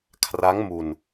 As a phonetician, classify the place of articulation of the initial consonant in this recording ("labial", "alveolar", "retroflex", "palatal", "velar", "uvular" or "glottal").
velar